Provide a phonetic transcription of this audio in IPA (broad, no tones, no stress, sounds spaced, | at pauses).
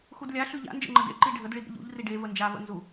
x u d lʲ a ɬ ʉ ʎ a̰ n d͡ʒ ə̰ ŋ͡ǃ ə d ḛ ǃ i ɖʱ ə d ɭ i d ɾ ə̰ ʎ ṵ ʎ r i ɖ e v ə n d͡ʒ a v ə̰ n z u